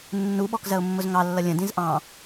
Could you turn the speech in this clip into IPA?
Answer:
nː u ɓ ɔ k z ɜ ʊ̯ mː ʊ z ŋ ɑ lː ʌ lʲ ə̃ d ĩ z ʔ ɑ̃

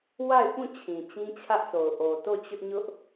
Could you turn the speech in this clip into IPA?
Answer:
w a˦˨ ɪ̯ p ũ˦˨ t͡ɕʰ ĩ˨ t͡ɕ ĩ˦ t͡ɕʰ ä˦ ʔ s o˨ ʊ̯ ʔ o˨ t o˦˨ t͡ɕ ʊ˦ ʔ ɲ ʊ˦ ʔ

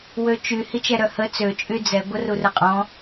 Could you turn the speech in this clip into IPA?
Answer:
w ø t͡ʃ y h i t͡ʃ ɛ ɾ œ h ə t͡s ø t͡ʃʼ y d͡z ɛ ɡʷ ə r u r ə qʼ ɔ̃

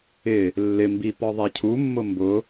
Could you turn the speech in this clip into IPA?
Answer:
ɪ | lː ɪ m b i p ɔ ðˤ ɛ cʰ u mː ʊ m b ʊ

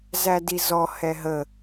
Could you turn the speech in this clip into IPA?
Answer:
z æ d i z ɔ h ɛ ɦ ə

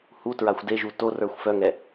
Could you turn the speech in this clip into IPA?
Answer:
h u t ɹ a xʷ d e ʒ u t o r ə˞ xʷ f œ ŋ ɛ

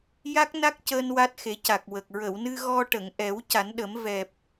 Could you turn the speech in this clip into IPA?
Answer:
j a˦˥ k̚ n a˦˥ k̚ c əː˧ n w a˦˥ t̚ x e˨˩˦ c a˨˩ k̚ w ə˨˩ k̚ ɹ ə˨˩˨ w n ɨ˧ ɣ ɔ˧ ʈ ə˨˩˨ ŋ ʔ ɛ˨˩˦ w c a˨˩˦ n ɗ ə˨˩˦ m v ɛ˨˩ p̚

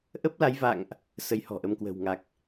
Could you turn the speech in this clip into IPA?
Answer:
ʔ ə˦˥ p̚ l a˨˦ j v a̰˧˨ ŋ ʔ | s ə˧ j h ɔ̤˨˩ ʔ ə˨˦ m k w ə̤˨˩ w ŋ a˨˩ k̚

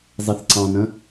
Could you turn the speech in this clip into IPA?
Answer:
zˤ i θ ǀ ɑ̃ n ə̃

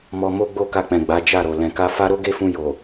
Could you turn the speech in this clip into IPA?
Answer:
m ɔ˧ m o˦ ɡ͡b o˦˨ k a˧ k͡p ɛ̃˨ ɡ͡b a˨˦ d͡ʒ a˦˨ ɾ o˨ l ɛ̃˨ k a˧ f a˦ ɾ o˦ ɡ e˦ f ũ˧ j o˨

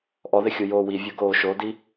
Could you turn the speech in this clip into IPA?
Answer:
ʔ ɔ ð ɪ xʲ u j oː w i vʲ o ɡ oː ʃ o d i

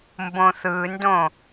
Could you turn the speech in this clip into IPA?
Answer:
m b õ θ ɯ n d õ

